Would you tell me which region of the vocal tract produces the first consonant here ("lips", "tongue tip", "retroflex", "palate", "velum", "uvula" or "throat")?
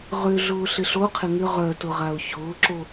uvula